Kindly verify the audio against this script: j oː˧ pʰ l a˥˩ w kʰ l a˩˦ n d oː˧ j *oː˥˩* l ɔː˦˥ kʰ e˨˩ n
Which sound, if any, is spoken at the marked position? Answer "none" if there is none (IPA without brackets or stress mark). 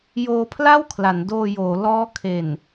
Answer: oː˩˦